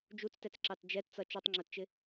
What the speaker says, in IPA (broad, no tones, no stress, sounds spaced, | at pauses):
d͡ʒ u t͡s t ɛ t͡s ǁ ɑ t d͡ʒ ɛ t t͡s ʌ t͡ʃ u tˤ ŋ͡ǁ ʊ t t͡ʃ ɪ